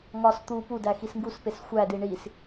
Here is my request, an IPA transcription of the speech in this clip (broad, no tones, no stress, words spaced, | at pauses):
ŋɒs t̪u pudæxis ŋɡuspes xʷædi ɳis